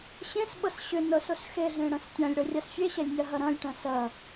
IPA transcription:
ɕ ẽ s ɓ ɤ s ɕ ʏ n ɤ s o s x e ɮ ẽ ɽ ɐ̃ s tʲ ã lʲ ɽ ɤ rʲ a s fʲ e ɕ ɛ lʲ nʲ a ɦ ɐ ɾ ɐ̃ lʲ ʈ ɐ̃ s ɐ

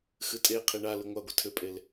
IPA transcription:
x ɨ tʼ e qʰ i ɳ a l ɨ ŋʷ a ɡʷ ɐ tʰ ʏ pʼ e l

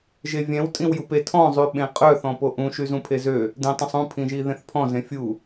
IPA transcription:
ʒ e vʲ ɛ̃ w tʼ ĩ w j u p e tʰ ɔ̃ zˤ y ɓ ẽ qʼ œ θ ɔ̃ p o ʔ ũ ʃ y z ũ pʰ e z ø | d ĩ tˤ ũ sˤ ũ pʰ ĩ ʒ i ð ẽ θ pʰ ɔ̃ z ẽ fʲ u

